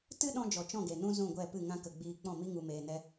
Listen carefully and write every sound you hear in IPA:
tɨ˦ɗɔ̃˧d͡ʒɔ˨ t͡ʃɔ̃˦˨ɡe˨ nũ˦ zũ˦˨ɡʷɛ˦˨pɨ˦˨ ŋã˦kə˧ ɡ͡biː˧k͡pɔ̃˦˨mi˦ ŋu˧meː˧nɛ˦

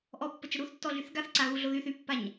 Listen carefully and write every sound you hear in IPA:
ʔɔpːət͡ʃə ɾuθtːɔɮyθ ɡaθǀaɣuɮo ðyθ ypːaɲ

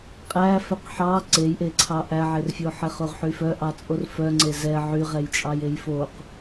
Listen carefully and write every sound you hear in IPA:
qʼæ fœqħɑ ǀejʔeǀʰɑ ʔæʕerfʲo ħɛχoʁħyfœ ʔɑt͡sʼorfœ ŋ͡ǀezɛ ʕyʁɛjt͡ʃʼɑj ejfoq

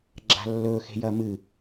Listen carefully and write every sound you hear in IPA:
ɡ͡ǁa̤lːɵ xe̤jɐmɨ

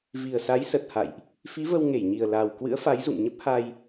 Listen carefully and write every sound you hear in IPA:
vi˨˩ə̯sa˨˦j sə˨˩t̚ha̰˧˨jʔ | fi˨˦və˧w ŋe˧˩jɲi˨˩ə̯ la˨˩w kwɨ̰˧˥ə̯fa˨˦jzṵ˧˨ŋ ɲə˦˥p̚ha˧j

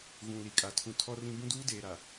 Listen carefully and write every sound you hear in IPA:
ɣũ˨li˨kʼa˨ tʰũ˨ tʰɔ˦rĩ˦ bũ˦duː˦ deː˨ɾa˨

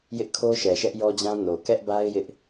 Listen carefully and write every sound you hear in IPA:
jɪ˦ʔkʰo˦ ʃɛ˨ʃɛ˦ʔjɔ˦d͡ʑã˦ no˨ kɛ˦ʔba˦ɪ̯ jɪ˦ʔ

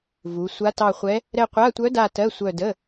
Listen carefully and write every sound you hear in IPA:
vu˩˧sʷa˧˥tɑ˦˨χʷɛ˧˥ | ɾɛ˦˨qʷa˧˥˧tʷœ˧˥da˦˨ tɜ˧˥˧sʷœ˦˨də˧˥˧

